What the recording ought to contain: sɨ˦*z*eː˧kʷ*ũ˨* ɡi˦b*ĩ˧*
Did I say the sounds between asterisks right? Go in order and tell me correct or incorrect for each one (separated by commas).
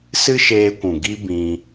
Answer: incorrect, correct, correct